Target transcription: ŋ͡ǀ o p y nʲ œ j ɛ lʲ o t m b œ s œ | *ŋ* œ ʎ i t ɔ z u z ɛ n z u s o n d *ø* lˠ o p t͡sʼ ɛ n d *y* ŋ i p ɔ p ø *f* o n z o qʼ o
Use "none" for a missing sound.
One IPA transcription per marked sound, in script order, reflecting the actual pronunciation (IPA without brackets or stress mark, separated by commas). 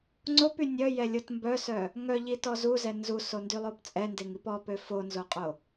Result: ŋ, y, e, f